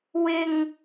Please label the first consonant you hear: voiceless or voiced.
voiced